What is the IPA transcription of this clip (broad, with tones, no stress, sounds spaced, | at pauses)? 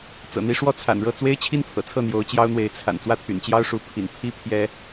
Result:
t͡s ɤ̰˨˩ n̪ i˥ ʂ w ɔ˥˩ t͡sʰ a̰˨˩ n ɻ ɤ˥˩ t͡s w e˥ ɪ̯ t͡ɕʰ i˥ n pʰ ɤ̰˨˩ t͡sʰ ɤ˥˩ n̪ j o˧˥ ʊ̯ t͡ɕ j ɑ˥ ʊ̯ n̪ w e˧˥ ɪ̯ t͡sʰ a̰˨˩ n t͡s w ä˥ t̪ʰ y̰˨˩ n t͡ɕ j ɑ˥ ʊ̯ ʂ u˧˥ pʰ ḭ˨˩ n pʰ i˥ pʰ j ɛ˥